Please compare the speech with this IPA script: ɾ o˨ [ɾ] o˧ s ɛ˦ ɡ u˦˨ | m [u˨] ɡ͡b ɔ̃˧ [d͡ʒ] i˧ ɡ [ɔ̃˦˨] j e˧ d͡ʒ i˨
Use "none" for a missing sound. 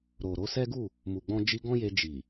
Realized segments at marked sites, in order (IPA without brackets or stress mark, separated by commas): ɾ, u˨, d͡ʒ, ɔ̃˦